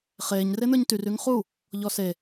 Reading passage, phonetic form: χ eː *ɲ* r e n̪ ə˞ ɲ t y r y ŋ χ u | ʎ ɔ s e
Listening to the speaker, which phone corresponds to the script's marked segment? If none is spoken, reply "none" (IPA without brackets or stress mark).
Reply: ɲ